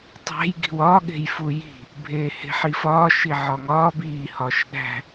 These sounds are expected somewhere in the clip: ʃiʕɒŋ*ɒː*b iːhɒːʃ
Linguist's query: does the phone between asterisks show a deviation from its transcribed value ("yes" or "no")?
no